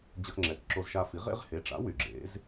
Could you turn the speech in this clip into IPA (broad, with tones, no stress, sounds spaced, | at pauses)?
d͡ʑ ə˦ x ŋ͡ǁ ɛ˩˥ k ǁ o˦ z ʃ a˦ f i˩˥ ʁ ḛ˦ ʁ h e˩˥ ʈ͡ʂ a̰˩˥ w y˨ ɡ͡ǁ ḛ˩˥ z